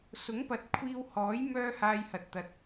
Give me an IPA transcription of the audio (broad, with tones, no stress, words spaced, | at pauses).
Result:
sʊ˨˥ŋpɐ˨˥t̚kʷʰiː˧whɔː˨˥j mœː˥haː˧jhɐ˨t̚ t̪ɐ˧t̚